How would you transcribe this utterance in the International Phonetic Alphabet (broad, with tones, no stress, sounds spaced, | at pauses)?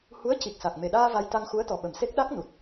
h u˧˥ ə̯ c i˨˩ k̚ s a˨˩ k̚ m e˨˩ ɗ aː˧ v a˧ j t̪ a˧ ŋ x u˧˥ ə̯ t̪ ɔ˨˩ ɓ ə˨˩ m s e˦˥ k̚ ɗ a˦˥ k̚ n u˨˩ t̚